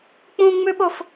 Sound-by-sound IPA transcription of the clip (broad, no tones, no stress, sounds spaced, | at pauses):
k͡p ũ ŋ͡m ʉ ɓ o f